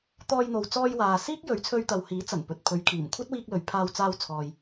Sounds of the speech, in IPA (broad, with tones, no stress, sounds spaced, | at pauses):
t̪ ɔː˧ j n̪ o˨ w t͡s ɔː˧ j w aː˨ s iː˥ k̚ j ɵ˨˧ ɥ t͡sʰ ɵ˧ ɥ t̪ ɐ˨ w h iː˨˥ t͡s ɐ˨˩ n p ɵ˨ t̚ pʰ ɵ˨˧ ɥ kʰ iː˨˩ m kʷʰ ɐ˥ t̚ w iː˧ k̚ l ɵ˨ ɥ pʰ aː˧ w t͡s aː˧ w t͡sʰ ɔː˨ j